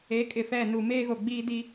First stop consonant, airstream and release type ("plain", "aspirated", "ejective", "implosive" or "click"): ejective